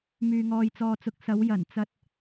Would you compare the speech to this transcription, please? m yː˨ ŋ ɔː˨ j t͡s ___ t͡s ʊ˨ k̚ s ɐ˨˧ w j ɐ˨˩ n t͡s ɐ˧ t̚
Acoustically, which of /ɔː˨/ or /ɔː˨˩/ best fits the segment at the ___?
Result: ɔː˨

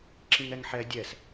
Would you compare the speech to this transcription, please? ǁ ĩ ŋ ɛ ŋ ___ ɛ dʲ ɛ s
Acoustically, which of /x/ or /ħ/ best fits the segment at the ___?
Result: ħ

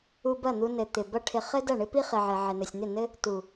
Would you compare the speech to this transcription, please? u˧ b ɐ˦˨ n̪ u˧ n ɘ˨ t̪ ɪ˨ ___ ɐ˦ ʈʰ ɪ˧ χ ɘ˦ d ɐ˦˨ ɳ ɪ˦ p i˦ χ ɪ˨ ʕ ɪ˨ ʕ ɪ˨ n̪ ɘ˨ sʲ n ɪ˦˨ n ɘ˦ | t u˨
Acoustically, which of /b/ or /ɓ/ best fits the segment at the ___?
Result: b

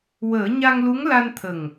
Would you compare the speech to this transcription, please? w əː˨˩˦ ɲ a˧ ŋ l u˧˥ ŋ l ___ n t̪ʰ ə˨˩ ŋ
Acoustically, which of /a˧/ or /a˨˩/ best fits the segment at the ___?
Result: a˧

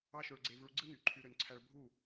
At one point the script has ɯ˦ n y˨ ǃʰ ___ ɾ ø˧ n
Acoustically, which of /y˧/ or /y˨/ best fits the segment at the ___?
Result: y˧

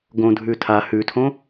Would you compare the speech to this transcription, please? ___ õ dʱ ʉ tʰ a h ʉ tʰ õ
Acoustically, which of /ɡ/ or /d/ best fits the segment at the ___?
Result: ɡ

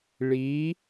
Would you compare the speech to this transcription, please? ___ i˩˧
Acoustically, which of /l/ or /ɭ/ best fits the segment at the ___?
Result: ɭ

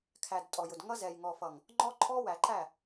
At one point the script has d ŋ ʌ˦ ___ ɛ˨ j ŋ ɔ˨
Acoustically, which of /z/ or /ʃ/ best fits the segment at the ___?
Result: z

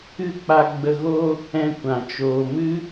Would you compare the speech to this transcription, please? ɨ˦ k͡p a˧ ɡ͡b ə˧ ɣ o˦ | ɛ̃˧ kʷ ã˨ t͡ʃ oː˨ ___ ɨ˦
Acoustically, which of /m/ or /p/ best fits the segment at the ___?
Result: m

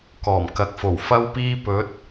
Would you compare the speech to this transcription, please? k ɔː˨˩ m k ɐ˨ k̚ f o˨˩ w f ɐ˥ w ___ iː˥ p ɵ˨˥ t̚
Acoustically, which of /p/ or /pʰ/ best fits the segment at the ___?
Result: p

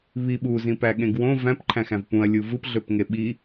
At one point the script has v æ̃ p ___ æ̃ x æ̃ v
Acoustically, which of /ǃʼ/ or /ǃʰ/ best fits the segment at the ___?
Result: ǃʰ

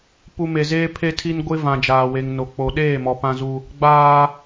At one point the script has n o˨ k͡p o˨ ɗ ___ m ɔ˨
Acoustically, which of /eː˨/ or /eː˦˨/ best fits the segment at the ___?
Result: eː˦˨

